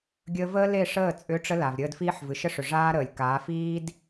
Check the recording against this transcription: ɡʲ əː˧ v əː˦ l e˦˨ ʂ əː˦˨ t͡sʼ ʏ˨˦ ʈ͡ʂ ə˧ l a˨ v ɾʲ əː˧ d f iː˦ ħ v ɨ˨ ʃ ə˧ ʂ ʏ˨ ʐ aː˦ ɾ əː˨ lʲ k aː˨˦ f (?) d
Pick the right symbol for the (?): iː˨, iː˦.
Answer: iː˦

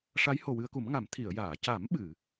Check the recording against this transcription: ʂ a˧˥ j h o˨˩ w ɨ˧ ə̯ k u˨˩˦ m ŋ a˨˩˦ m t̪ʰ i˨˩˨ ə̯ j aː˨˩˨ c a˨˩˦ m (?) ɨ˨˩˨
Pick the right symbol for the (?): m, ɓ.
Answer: ɓ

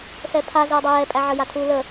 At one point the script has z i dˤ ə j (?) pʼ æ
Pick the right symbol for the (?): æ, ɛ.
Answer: ɛ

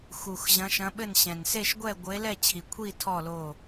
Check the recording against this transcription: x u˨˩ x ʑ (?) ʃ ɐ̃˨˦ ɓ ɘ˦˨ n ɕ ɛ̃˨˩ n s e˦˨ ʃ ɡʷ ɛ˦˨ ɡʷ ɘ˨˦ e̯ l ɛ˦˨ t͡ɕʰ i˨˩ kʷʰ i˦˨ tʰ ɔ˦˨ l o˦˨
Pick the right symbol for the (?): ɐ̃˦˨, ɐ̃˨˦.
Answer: ɐ̃˨˦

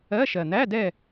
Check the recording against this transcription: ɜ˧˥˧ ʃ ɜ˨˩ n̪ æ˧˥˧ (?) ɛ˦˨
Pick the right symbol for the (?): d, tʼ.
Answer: d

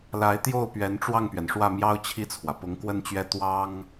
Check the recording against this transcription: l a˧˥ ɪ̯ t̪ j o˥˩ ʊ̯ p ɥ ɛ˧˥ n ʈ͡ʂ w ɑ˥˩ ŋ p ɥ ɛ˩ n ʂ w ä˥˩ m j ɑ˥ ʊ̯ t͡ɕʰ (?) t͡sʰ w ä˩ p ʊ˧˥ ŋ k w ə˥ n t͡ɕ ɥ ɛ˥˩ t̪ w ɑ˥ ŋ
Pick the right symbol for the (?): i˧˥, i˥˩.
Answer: i˥˩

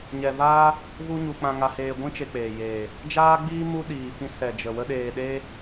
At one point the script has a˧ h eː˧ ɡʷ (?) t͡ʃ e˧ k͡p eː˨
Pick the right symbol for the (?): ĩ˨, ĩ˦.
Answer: ĩ˦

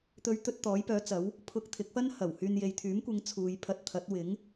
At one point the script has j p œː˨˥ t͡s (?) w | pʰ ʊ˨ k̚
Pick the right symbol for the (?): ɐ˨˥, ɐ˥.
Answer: ɐ˨˥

